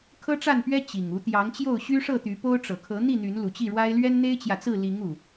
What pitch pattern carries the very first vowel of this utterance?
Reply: high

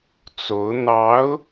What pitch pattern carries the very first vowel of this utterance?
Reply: rising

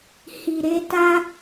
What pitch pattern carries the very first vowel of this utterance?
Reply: low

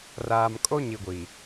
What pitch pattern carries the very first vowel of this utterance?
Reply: low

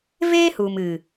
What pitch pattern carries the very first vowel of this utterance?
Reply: high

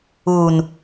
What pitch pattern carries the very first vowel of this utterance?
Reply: low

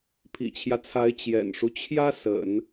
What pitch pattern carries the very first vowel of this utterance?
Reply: low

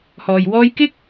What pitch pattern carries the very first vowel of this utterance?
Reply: low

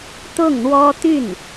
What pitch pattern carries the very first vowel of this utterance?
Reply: falling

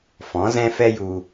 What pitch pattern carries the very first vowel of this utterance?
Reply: rising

